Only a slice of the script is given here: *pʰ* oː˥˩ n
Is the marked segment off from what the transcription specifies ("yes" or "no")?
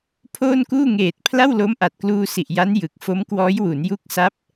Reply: no